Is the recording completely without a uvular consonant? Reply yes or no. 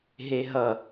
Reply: yes